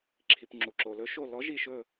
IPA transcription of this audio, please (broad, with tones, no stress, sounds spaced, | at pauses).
ǁʰ i˩ p ŋ͡ǁ u˩ ǁ o˩ l ɵ˨˦ ʃ o˧˩ l ɔ˨˦ ʒ i˧˩ ʃ ɵ˧˩